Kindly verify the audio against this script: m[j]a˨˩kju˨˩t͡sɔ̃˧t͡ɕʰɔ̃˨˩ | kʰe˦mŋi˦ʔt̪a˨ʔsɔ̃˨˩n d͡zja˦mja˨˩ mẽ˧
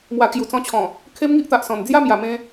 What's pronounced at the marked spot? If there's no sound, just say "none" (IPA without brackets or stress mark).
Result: w